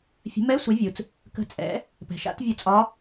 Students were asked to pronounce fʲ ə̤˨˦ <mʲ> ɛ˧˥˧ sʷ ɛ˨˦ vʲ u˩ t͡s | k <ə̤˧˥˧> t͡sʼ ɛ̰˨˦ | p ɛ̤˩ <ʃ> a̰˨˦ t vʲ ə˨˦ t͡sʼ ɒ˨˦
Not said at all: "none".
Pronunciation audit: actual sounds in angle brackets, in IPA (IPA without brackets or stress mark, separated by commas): m, ə̤˨˦, ʃ